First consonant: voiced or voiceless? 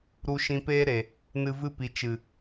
voiced